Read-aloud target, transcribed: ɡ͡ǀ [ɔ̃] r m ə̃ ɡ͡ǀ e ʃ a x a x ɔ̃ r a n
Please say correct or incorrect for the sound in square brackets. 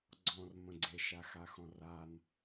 correct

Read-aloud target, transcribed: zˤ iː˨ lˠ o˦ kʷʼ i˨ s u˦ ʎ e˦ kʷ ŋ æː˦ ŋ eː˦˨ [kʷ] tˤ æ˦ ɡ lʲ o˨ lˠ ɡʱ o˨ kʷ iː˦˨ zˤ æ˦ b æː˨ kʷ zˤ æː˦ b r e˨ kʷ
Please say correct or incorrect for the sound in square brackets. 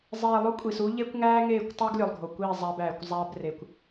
correct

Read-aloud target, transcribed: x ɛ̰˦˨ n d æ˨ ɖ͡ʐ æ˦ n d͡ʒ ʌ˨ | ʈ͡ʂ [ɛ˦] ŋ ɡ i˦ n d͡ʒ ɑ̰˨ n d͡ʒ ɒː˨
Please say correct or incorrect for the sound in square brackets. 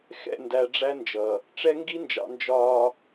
correct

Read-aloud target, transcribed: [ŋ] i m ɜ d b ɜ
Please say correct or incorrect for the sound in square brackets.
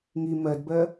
correct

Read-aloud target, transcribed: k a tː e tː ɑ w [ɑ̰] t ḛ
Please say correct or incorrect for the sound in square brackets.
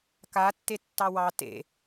incorrect: ɑ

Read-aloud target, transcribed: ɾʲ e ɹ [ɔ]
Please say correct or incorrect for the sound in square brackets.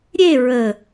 incorrect: ə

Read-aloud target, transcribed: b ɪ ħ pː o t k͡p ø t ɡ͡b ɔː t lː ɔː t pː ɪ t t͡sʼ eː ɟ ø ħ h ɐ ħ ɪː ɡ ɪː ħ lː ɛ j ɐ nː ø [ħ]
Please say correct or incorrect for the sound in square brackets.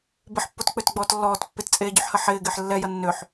correct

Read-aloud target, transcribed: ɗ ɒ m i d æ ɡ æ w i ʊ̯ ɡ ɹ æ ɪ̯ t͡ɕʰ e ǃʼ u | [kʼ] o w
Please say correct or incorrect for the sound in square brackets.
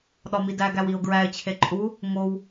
incorrect: ŋ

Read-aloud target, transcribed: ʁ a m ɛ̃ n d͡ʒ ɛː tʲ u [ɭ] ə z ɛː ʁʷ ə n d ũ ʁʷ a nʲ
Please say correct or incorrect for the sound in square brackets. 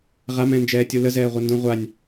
incorrect: l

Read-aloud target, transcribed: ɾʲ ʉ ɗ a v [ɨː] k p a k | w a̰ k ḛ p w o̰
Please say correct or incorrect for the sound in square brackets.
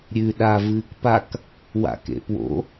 correct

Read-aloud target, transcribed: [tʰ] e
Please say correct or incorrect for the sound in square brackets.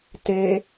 incorrect: t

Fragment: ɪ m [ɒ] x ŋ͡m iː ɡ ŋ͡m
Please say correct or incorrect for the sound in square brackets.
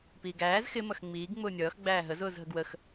incorrect: ʌ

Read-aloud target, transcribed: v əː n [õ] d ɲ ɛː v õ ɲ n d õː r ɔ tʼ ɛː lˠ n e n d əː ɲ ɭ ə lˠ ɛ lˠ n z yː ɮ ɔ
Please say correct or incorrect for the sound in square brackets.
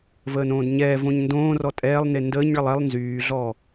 incorrect: õː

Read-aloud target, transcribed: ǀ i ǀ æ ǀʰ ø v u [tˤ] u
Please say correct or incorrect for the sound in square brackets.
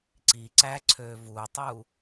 correct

